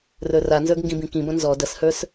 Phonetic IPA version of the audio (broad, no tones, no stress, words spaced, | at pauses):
rə˞ranzə˞ɡ ŋɡĩbĩkĩbɐ̃ nzɔ dɐshə˞s